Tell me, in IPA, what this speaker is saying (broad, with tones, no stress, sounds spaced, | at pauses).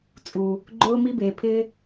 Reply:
t͡sʼ u˨ | ɡ͡ǃ ʊː˦ m i˦ b eː˨ pʰ ɪː˦